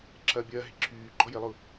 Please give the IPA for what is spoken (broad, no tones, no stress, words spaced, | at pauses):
ǁʰɐːbʲɐːɦɪ ǁʰyː ɡ͡ǃɔjɪlˠʊ